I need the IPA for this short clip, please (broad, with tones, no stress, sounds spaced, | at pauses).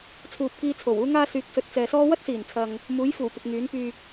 t͡sʰ uː˨ p̚ k iː˧ t͡sʰ o˨˩ w uː˥ ŋ aː˥ s yː˨˥ k̚ s ɵ˨ t̚ t͡s ɛː˨ s ɔː˥ w ɐ˥ t̚ s iː˨˩ n t͡sʰ ɐ˨ ŋ | m uː˨˥ j f uː˨˩ p ɪ˨ k̚ ŋ yː˨˥ n p yː˧ k̚